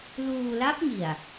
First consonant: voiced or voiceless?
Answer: voiced